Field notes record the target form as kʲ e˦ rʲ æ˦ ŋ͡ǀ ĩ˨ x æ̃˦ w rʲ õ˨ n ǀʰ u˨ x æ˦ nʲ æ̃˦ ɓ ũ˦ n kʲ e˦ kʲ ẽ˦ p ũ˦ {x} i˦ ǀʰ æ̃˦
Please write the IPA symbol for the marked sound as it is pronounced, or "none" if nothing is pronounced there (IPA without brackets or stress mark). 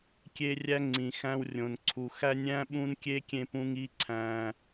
ŋ